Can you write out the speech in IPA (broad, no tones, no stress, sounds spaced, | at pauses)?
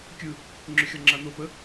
kʲ ɯ | ŋ͡ǁ ʏ xʲ ɔ ŋ͡ǁ a n o p ə